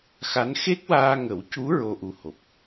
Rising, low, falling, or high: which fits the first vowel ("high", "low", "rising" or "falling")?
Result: rising